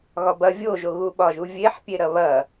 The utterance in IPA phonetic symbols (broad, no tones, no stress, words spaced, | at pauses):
ɣɒbɐ vʲoʒoɣu ɓɒʒuvʲeħ pʲeɾɐβɐ